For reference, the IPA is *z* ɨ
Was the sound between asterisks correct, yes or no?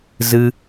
yes